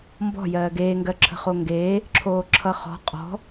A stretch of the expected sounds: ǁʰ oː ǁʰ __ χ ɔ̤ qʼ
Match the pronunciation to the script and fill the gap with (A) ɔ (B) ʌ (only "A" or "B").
B